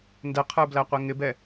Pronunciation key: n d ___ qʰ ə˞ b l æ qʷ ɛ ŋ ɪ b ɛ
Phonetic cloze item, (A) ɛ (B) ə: A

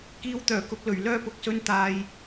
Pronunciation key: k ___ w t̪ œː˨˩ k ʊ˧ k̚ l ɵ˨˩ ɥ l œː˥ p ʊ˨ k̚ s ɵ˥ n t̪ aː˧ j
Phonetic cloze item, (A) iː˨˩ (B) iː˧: B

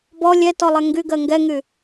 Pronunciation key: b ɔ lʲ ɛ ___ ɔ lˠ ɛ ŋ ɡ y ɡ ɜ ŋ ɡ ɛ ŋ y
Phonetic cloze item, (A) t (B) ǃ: A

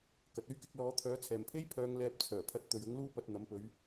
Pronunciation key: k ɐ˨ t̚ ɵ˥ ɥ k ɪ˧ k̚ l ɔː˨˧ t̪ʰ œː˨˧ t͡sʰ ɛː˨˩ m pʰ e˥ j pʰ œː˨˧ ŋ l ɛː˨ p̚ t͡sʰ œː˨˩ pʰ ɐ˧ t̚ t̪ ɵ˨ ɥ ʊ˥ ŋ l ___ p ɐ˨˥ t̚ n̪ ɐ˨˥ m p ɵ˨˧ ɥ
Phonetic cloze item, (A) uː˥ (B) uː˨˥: A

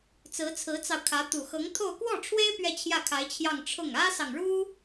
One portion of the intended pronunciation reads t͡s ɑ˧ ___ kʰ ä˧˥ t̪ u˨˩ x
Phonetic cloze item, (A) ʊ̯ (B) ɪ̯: A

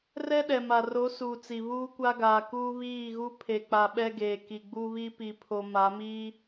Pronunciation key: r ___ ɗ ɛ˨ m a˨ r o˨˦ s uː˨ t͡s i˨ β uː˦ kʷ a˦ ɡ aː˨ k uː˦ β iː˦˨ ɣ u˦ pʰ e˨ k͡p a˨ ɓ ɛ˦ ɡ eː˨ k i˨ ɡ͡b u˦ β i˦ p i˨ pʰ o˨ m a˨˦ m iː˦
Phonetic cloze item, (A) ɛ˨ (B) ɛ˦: B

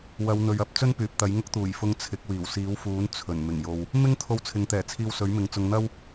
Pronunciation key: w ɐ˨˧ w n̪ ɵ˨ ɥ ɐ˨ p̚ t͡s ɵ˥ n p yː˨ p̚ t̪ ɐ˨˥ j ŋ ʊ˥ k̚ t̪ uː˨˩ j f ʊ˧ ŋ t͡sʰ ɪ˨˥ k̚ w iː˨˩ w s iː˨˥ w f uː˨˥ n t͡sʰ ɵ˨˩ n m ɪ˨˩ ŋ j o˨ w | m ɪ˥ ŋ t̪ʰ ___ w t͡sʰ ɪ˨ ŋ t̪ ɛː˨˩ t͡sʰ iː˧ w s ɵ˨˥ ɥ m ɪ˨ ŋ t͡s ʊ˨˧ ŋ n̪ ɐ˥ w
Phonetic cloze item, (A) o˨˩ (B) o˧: B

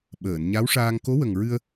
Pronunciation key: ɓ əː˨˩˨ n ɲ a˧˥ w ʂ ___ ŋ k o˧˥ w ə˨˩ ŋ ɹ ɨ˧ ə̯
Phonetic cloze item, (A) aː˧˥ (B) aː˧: B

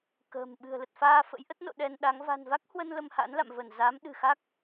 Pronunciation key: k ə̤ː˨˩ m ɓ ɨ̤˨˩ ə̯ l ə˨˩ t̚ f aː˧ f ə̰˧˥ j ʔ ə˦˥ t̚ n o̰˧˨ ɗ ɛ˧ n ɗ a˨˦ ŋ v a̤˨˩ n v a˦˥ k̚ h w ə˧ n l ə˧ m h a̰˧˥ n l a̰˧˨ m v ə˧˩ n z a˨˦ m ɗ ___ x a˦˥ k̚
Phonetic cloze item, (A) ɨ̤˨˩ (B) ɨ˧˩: A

